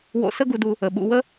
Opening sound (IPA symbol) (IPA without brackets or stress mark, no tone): w